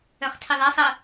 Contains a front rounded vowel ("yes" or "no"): yes